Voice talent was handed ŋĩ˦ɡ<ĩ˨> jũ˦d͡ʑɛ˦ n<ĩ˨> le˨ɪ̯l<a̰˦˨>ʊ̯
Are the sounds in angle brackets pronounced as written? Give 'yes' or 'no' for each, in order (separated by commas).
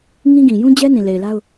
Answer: yes, yes, no